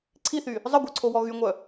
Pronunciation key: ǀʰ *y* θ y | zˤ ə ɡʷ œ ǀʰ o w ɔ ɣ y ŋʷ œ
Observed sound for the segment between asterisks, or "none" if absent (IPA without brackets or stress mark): i